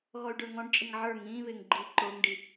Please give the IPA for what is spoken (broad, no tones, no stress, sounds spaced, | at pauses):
ɣ ɔ y̯ ɖ ə˞ ŋ ɔ̃ ɖ t͡ʃʼ ɪ ŋ ʕ ə˞ ŋ ĩː β ɪː ŋ ɡ͡ǃ iː ǃ ʊː ŋ ɖ i